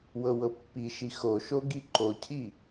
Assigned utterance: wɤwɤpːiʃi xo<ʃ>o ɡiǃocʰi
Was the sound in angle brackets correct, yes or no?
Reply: yes